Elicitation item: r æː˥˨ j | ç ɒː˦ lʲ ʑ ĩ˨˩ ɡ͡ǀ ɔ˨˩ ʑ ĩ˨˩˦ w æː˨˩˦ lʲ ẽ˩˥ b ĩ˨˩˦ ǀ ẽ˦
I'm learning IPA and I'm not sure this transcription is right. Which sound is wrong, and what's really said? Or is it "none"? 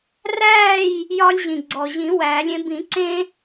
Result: ç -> j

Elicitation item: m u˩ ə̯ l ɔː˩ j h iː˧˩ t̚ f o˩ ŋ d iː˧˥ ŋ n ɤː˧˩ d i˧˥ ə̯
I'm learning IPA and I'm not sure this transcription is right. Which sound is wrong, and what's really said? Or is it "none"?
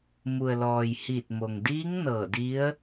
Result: f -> m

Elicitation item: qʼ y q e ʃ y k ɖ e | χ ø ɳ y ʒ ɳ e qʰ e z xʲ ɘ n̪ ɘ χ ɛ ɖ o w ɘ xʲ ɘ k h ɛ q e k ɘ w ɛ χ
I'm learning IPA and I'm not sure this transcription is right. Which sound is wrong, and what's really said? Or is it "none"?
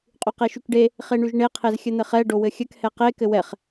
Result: ø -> e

